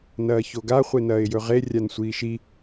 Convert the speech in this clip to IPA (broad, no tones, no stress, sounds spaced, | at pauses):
n ɐː ç o ɡ a χʷ e n ɐː ɪ̯ j ɵ ʁ e rʲ a n sʷ iː ʃ i